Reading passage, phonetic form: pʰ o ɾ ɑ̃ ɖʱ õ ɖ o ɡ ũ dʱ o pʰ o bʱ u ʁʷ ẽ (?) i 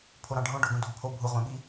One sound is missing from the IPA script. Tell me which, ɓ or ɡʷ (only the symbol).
ɓ